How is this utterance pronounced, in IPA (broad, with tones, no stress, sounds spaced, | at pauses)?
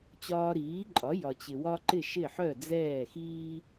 t͡ɕ ɒː˧ ɾ iː˩˥ ǃʼ ɒ˩˥ j ɒ˩ t͡ɕ ɪ˩ w ɒ˧ ǃ ɪ˥˩ ʃ ɪ˥˩ ħ œ˥˩ d͡z ɛː˥˩ x iː˥